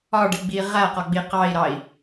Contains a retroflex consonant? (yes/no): yes